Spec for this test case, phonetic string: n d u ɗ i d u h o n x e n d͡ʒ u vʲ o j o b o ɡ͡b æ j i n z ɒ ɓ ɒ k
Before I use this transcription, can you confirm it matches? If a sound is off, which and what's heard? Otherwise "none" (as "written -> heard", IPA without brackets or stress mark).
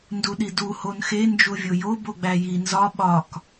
none